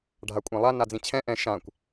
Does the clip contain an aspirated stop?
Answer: yes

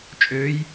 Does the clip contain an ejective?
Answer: yes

